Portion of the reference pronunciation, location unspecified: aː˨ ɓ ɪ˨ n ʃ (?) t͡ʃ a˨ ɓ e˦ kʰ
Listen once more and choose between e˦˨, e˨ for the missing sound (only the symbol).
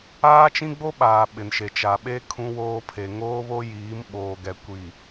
e˨